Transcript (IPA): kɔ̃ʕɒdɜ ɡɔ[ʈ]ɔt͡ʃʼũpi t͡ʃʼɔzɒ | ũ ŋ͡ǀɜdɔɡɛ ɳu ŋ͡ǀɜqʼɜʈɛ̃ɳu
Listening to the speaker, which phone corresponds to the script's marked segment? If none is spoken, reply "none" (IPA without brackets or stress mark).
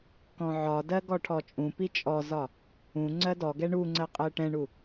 ʈʰ